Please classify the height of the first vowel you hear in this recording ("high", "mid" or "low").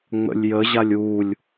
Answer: mid